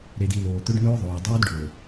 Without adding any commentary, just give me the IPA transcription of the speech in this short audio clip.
ɾe˨di˨ loː˨t̪ɵ˦ɖnɵː˦ðˤoː˨ dˤɵː˦dɖɵː˨

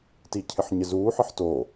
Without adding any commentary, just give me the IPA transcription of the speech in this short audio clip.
ticʰɪħɲɪzuː ħɘħto

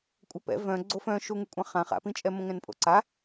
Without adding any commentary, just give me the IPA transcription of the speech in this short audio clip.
kʷʼəpɛ̰ vœ̃ ɡ͡ǀofœ̃ ʃuŋykʷʼãχã χa̰pĩt͡ʃʼɛ mõŋɛ̃npʼo̰ǀa

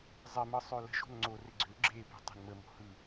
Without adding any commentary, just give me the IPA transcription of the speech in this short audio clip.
zˤɪmɯ sˤølə̤ʒo̤n ŋ͡ǀorɪ ɡ͡ǀø ɡ͡ǁepi̤ tˤe̤nməmo̤ hɯ

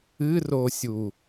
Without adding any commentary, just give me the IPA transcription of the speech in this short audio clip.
ɨrosʲu

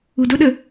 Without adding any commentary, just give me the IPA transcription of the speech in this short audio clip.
udʊɗə

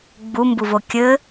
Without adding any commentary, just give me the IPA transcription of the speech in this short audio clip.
ɡ͡bumbuvo kʲɘ

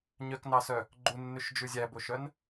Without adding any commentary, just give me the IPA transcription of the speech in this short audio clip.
ɲœknɑsœ | ɡ͡ǃunːʉʃd͡ʒʉ zʲæboʃœn

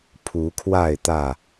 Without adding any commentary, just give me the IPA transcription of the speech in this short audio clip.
pʰu˨˦kʰwa˥˨ɪ̯t̪ä˥˨

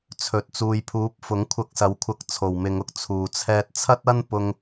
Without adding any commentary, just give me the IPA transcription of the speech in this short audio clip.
t͡sʰɵ˨t̚ t͡suː˨jpʰuː˨˥p̚ fʊ˨˥ŋkʷʰɐ˧k̚sɐ˨˥w kʷʰɐ˧k̚ t͡sʰo˨˩wmɪ˨˧ŋʊ˥k̚ t͡sʰuː˨˩t͡sʰɛː˧t̚ t͡sʰɐ˥t̚ɐ˥n pʊ˧ŋ

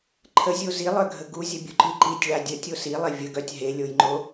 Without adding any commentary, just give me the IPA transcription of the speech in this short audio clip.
ǃʰəzʲo zilˠœɡʱə ɡuzʲəbʲuǃi ǃitʲɭa dʲətʲo silˠe vʲəɡœtʲ ɦelʲojŋ͡ǃo

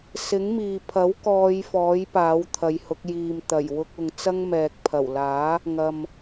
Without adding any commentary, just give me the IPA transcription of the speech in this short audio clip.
sɪ˨˥ŋmiː˨pʰɐ˨˥w kɔː˧jfɔː˨˥j paː˨˥wt̪ʰɐ˨˧jhʊ˨˥k̚ jiː˨m t̪ɐ˨˩jwʊ˧k̚ ʊ˨ŋt͡sɐ˥ŋmɛː˨k̚pʰɐ˨˩w laː˨˥ | ŋɐ˨m

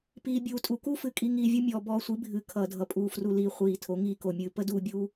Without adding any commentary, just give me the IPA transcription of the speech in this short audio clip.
piː˨bʲuː˨ tʼu˨ku˦fɨ˨kʼi˧ ŋiː˧vʲu˦ mʲɔː˨ bɔː˧sʷi˨˦bʱɨː˨ kʰʌː˨dʱʌ˨pʼuː˨ fru˨liː˨ χʷiː˨ tʰo˨˦ŋiː˧ko˨mʲɨː˧ pə˦duː˧bʲuː˧

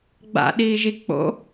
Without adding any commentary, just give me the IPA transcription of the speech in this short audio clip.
ɡ͡ba̰ɗiːʒi k͡po̰

